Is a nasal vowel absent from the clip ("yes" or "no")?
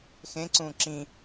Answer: no